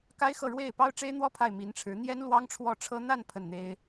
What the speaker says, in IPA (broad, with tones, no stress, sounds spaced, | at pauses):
k a˥ ɪ̯ x ɤ˥˧ ɻ w e˥˩ ɪ̯ p ɑ˥ ʊ̯ ʈ͡ʂ e˥ ɪ̯ n̪ w ɔ˥ pʰ a˥˩ ɪ̯ m i˧˥ n ʈ͡ʂʰ ɻ̩˧˥ n̪ j ɛ˥ n l w ɑ˥ ŋ ʈ͡ʂʰ w ɔ˥˩ ʈ͡ʂʰ ɤ˥ n̪ a˥˧ n pʰ ə˥˩ n n̪ e˥ ɪ̯